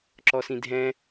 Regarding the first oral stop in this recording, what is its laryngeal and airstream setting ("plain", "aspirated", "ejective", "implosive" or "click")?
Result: click